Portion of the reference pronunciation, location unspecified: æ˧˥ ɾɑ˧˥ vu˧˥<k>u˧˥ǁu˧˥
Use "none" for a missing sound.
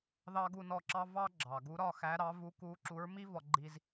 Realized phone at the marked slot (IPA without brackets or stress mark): k